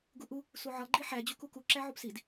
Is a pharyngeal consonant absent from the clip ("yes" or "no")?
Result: no